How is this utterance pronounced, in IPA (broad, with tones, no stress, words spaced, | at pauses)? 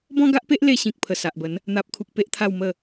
bɔ̃˦ɡa˦ʔpe˦ʔ le˧ɕĩ˨k̚pʰə˨˩ sa˨ʔbə˨˦n | n̪a˨p̚kʰu˨k̚ pe˦ʔt̪ʰa˥˧w mə˥˧